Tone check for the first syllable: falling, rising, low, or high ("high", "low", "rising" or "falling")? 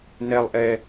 high